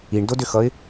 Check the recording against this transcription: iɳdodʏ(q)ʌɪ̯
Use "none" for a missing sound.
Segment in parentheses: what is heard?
x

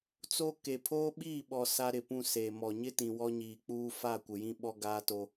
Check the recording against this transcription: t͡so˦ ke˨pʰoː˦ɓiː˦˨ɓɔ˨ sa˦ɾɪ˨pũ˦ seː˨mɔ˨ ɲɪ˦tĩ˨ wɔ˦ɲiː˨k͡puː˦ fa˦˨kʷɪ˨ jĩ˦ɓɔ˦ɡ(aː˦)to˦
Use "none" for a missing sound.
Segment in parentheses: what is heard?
aː˦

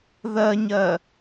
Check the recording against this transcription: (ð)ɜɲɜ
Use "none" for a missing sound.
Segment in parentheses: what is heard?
ð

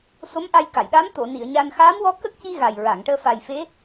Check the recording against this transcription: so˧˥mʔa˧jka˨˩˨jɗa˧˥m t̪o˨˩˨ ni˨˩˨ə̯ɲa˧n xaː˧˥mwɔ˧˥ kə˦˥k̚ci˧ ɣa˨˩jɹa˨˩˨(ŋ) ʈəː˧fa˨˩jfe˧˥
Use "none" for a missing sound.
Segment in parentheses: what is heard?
ŋ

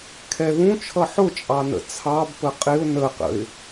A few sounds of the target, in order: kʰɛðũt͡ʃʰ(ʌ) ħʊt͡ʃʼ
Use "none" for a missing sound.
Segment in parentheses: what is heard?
ʌ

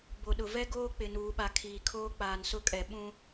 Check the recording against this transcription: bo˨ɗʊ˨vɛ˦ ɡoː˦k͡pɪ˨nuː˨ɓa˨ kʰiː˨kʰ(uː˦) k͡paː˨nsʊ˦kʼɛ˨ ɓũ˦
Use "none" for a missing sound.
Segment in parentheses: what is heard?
oː˦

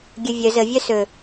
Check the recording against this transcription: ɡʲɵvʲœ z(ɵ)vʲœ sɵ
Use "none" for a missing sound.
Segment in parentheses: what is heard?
ə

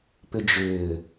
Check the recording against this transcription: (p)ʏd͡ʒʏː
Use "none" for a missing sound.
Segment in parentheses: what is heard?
p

